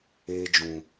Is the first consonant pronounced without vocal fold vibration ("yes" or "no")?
no